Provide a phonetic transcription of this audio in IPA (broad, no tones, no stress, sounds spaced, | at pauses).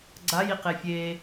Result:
ɡ͡ǀ a j i q e fʲ e